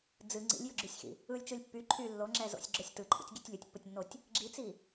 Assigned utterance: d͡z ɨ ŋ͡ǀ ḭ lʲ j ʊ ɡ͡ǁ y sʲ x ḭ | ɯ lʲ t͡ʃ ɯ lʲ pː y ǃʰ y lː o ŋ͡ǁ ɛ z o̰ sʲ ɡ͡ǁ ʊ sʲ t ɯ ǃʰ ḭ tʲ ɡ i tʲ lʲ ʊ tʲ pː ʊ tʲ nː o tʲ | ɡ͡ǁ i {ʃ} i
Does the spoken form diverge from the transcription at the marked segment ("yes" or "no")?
yes